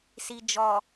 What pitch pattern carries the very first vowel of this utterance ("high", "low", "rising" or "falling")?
low